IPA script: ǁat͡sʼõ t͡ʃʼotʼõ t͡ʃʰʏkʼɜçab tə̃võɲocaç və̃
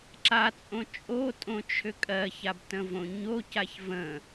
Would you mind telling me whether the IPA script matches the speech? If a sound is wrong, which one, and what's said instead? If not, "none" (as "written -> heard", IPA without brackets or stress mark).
none